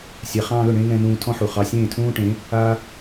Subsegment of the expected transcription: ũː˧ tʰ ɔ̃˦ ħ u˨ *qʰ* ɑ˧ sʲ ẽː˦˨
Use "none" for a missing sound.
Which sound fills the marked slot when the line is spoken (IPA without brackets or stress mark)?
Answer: χ